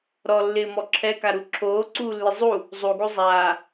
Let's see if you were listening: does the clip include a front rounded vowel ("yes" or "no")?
no